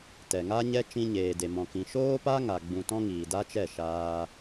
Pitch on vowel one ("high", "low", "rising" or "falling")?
low